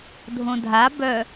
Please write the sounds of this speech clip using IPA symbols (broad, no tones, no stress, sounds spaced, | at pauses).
dʱ õ dʱ a b œ